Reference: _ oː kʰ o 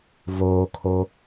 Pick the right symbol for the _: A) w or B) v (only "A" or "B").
B